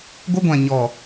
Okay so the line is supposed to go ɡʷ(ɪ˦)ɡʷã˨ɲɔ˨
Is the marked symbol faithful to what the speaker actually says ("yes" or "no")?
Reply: yes